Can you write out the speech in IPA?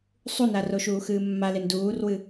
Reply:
sˤunaroʃuː xɨːmːalen duːrwɨ

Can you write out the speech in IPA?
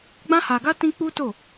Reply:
ɡ͡bã˦ha˧ɡa˦ tĩ˦ k͡pu˦to˦˨

